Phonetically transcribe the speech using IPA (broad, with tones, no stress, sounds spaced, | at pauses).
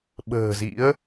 ɓ ə̤ː˨˩ z ḭ˧˥ ə̯